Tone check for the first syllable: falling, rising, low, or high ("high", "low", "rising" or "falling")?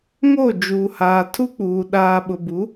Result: falling